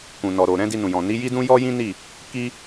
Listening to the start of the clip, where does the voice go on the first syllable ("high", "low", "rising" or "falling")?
low